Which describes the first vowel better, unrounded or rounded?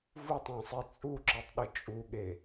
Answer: rounded